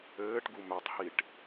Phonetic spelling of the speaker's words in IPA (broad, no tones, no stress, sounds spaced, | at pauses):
ɘː ʈ ɡ u m œ tˤ h i ʈ